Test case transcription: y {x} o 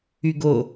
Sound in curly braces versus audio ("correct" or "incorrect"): incorrect